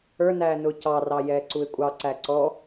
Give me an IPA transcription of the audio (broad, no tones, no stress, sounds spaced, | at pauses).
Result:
ə˞ n æː n ʊː c ɑ r ɑ j ɛː ǀ u ɪ̯ kʷʼ ɑ ǀ æ ǀ ɔ